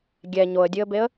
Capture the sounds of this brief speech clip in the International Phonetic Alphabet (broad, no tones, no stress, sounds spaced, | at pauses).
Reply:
ɡʲ ɛ ɲ o ə̯ dʲ ɨ ə̯ b e ə̯